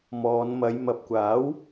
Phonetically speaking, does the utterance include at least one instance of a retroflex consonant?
no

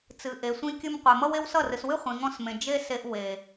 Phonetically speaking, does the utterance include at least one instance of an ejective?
no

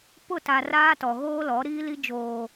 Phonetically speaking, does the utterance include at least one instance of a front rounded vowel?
no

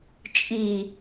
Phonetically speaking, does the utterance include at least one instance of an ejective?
yes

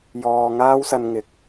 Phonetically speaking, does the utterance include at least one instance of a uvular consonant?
no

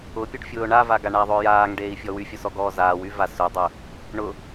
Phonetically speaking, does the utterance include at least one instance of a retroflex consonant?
yes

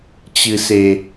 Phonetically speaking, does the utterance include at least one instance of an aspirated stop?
no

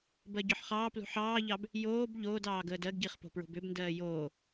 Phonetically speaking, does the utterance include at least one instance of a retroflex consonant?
no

